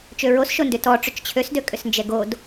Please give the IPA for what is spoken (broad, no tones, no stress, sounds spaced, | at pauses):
t͡ʃ ø ɹ o s ʃ o n d ʏ t ɔ ʈ͡ʂ ʏ t͡ʃ t͡ɕʰ ø s d ø kʼ ʏ s n d͡ʒ ɛ ɡ o d